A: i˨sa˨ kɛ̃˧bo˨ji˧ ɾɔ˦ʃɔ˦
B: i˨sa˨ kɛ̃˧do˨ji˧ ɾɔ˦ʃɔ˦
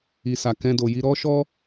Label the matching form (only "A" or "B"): B